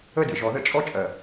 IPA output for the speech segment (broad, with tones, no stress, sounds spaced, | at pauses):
ə˦ d ə̰˨ ʒ ɔ˨ ð ə̰˦ t͡ʃʼ ɔ˦ t͡ʃʼ ɜ˨